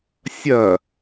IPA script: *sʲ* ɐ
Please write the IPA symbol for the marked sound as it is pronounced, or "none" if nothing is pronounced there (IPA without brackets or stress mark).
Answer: sʲ